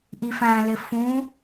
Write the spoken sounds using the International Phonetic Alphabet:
ʔ i f æ̃ l ɪ f ũ

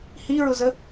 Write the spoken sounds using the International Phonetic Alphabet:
h i ɹ ʊ z ə

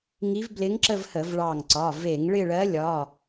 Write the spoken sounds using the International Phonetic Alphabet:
ŋ i˧˥ v b l ɪ˧˥ ŋ ǁ ə˥˧ v h ə˧˩˧ v ɭ ɑ˧˩ ŋ ǀ ɒ˩˧˩ v e˧˩˧ ŋ ɭ ɪ˥˧ ɭ ɜ˧˥ lʲ ɒ˩˧˩

